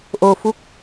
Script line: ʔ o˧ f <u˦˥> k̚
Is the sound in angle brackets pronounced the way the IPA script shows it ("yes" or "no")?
yes